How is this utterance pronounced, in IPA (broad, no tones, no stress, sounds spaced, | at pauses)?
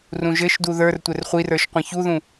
r ũ ʒ ɘ ʃ d u ð ə˞ r tʷ ɘ r χʷ i r ə˞ ʃ qʷ ɛ̃ ç u ð ũ